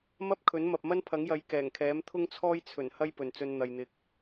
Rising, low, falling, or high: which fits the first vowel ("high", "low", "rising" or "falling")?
high